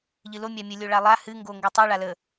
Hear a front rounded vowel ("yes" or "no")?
no